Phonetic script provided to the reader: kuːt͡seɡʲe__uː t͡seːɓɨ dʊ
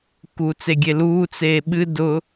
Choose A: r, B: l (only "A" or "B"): B